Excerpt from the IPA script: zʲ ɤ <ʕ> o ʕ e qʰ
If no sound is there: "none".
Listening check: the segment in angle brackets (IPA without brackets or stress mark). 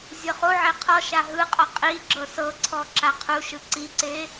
χ